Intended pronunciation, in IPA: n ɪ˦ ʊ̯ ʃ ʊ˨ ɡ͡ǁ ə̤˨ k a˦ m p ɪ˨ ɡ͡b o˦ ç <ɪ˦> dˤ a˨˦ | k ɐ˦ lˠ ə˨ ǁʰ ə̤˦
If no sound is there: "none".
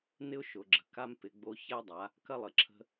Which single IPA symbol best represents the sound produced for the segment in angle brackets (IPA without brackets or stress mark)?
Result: ɛ˦